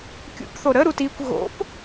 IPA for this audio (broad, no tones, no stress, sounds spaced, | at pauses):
kʲ ṵ p θ o ɾ ə ɾ u t i kʷ ɣ o̰ p